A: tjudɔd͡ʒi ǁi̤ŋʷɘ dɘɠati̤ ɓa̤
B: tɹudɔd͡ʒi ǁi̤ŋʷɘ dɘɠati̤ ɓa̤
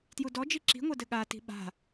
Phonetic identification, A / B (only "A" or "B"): A